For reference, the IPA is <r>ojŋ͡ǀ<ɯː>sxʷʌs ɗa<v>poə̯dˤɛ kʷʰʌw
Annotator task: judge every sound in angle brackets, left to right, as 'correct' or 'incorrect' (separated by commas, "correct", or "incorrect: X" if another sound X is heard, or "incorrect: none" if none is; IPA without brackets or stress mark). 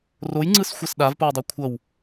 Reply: correct, incorrect: ɯ, correct